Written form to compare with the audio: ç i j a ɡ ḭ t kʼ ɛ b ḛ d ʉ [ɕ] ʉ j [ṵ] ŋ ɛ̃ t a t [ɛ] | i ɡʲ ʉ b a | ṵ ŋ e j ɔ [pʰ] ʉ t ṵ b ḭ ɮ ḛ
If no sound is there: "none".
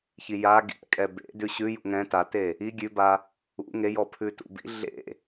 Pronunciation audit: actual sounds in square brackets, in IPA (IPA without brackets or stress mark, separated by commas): ɕ, ṵ, e, pʰ